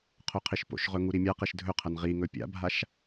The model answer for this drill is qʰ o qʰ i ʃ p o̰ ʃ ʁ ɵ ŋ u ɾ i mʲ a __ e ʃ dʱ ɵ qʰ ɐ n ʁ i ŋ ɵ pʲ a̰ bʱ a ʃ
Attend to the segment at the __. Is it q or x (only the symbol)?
q